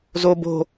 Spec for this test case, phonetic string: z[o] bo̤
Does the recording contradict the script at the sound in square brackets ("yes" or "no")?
no